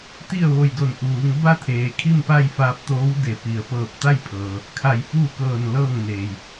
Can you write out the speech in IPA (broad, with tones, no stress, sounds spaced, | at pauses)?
t̪ i˥˨ ə̯ ʋ o˧˩ j d o˧˩ n ʔ uː˩˧ ŋ b a˥˨ t̪ʰ eː˩ kʰ i˥˨ m p a˥˨ j f aː˧ p̚ t̪ oː˧˥ w d e˧˩ p i˩ ə̯ p ɤː˧˩ p̚ t̪ a˥˨ j pʰ ɤː˩ | kʰ a˧˩ j f uː˥˨ k ɤː˧˩ n l ɤː˥˨ ŋ n eː˩ j